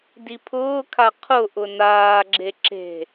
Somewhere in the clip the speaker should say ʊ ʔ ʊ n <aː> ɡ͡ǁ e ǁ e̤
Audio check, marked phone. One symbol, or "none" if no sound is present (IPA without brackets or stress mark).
aː